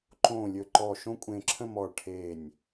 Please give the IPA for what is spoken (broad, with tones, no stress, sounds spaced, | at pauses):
ǃ õː˧˩ lʲ ɵ˧˩ ǃ ɔː˧˩ ʃ õ˥˧ kʷʼ ẽː˧˩ ǁʰ ə̃˥˧ m ɔː˧˩ ɭ ʈʰ eː˧˩ nʲ